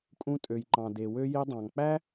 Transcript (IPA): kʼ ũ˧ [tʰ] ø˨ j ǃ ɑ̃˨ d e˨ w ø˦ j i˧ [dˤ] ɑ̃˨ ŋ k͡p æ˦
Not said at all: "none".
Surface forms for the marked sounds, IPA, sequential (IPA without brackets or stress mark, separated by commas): tʼ, dˤ